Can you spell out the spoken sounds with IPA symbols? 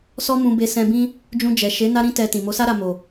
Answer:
s ɔ˦ m ũ˧ b e˧ s ɛ̃˧ b ĩ˦ | d͡ʒ ũ˧ d͡ʒ ɛ˨ ʃ e˨˦ n a˦ ɾ ĩ˦ t ɛ˧ t ĩ˨ m o˨˦ s a˦ ɾ a˧ m o˨

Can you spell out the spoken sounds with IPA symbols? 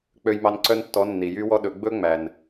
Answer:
k͡p ø˧ j m ɑ˧ n ǀ œ˦ n tː ɔ˨˦ nː i˨ j y˦ w ɔ˦ ɗ ɵ˨˦ ɡ͡b ɵ˦ ŋ͡m æ˨ n

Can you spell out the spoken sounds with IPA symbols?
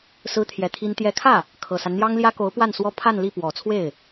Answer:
s ɹ̩˥ t̪ʰ j ɛ˧˥ t̪ʰ i˥ n t̪ j ɛ˧˥ kʰ ä˥˩ | kʰ ɤ˨˩ s a˦ n n̪ j ɑ˥ ŋ l j ä˥ k o˧˥ ʊ̯ p w a˥˩ n s w ɔ˥ pʰ a˥˧ n l i˥˩ p w ɔ˨˩ t͡sʰ w e˥˩ ɪ̯

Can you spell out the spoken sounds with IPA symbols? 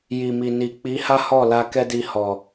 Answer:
j i˨ m i˨ n i˨ k͡p i˨˦ h a˦ h ɔ˦˨ l a˧ k ɛ˦ d i˧ h ɔ˨

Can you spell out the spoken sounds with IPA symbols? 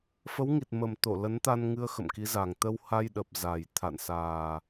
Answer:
f ə˨˦ w ŋ i˨˩ t̚ m ə˨˩ m t̪ o˧˩ l ə˨˦ n t̪ a˧ n ŋ ɨ˧ ə̯ x ə̰˧˨ m k i˨˦ z a˨˩ ŋ t̪ ə˧ w h a˧ j ɗ ə˨˩ p̚ z a˨˩ j t̪ʰ a̰˧˨ n s aː˨˩

